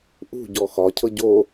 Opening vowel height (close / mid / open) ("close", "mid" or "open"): close